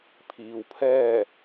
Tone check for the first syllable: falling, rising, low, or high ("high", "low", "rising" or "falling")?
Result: low